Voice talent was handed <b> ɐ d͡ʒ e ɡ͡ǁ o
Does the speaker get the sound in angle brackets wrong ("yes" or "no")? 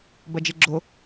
no